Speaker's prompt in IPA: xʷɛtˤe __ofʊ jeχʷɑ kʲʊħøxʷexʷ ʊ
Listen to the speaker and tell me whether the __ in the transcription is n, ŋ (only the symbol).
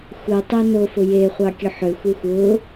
n